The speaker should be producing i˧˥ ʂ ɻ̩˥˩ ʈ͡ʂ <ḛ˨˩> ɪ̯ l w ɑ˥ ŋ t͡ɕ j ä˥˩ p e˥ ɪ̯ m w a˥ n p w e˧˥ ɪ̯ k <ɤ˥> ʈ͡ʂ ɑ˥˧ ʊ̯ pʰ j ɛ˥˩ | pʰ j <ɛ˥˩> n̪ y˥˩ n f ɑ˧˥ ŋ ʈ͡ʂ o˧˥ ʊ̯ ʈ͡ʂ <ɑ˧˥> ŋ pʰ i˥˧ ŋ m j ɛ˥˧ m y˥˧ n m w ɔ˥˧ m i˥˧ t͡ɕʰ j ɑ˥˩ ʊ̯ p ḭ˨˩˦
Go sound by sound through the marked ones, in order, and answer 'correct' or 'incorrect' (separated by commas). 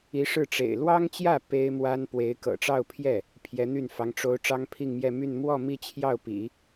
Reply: correct, incorrect, incorrect, incorrect